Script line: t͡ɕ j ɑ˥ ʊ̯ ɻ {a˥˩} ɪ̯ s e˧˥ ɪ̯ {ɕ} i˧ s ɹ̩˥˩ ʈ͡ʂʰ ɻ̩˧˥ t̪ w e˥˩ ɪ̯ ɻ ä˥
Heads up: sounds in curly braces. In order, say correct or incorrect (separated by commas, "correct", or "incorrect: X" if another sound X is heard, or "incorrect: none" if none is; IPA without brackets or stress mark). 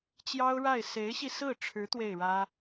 correct, correct